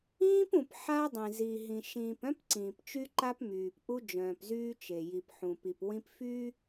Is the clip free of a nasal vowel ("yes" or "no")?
no